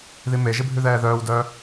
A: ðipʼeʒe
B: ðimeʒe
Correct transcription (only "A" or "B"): B